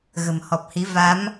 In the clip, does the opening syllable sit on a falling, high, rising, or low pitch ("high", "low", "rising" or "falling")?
low